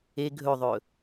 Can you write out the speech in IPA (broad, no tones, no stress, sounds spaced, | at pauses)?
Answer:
e ɡʱ ɵ ðˤ ɵ